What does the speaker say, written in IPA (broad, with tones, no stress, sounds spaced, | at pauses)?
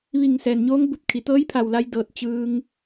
ʋ i˧˩ ŋ s ɛː˩ n ɲ oː˧˥ ŋ b u˧˩ t̚ kʰ i˩ t̪ ɤː˧˥ j pʰ a˧˩ w l a˧ j d ɤː˧˩ t̚ t͡ɕ ɯː˧ ŋ